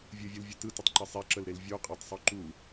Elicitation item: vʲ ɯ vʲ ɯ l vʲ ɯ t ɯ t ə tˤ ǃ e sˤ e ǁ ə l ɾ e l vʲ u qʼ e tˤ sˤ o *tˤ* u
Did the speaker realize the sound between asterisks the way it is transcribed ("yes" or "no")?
no